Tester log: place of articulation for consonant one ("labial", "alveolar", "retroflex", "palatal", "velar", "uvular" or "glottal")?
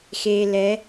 velar